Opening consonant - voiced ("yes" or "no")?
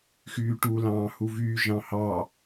no